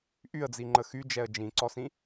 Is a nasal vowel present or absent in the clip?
present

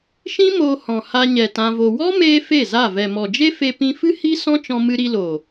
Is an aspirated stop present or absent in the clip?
absent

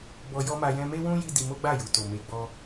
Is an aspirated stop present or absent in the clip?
absent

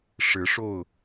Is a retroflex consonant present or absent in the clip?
present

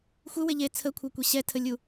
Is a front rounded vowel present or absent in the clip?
absent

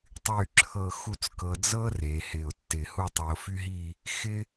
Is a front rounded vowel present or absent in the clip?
present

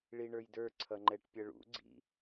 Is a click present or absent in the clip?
present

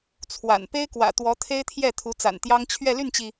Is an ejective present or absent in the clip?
absent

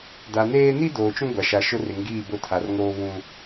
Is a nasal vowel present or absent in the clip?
present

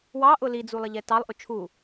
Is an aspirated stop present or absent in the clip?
present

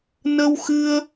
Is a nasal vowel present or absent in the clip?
absent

